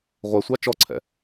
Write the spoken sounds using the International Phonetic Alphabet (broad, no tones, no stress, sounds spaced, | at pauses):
ʁʷ æ sʷ ɑ t͡ʃ ɔ ǀʰ ɛ̰